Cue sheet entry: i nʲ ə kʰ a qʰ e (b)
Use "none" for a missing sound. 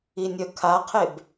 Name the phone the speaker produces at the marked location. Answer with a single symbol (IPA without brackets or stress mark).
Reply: b